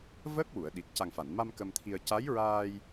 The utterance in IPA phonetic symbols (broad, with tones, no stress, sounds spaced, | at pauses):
v əː˦˥ k̚ w u˨˩˨ ə̯ ɗ i˨˩ t̚ c a˨˩ ŋ f a˨˩˨ n m a˧ m k ə˧ m t̪ʰ i˧ ə̯ c a˧˥ j ɹ aː˧ j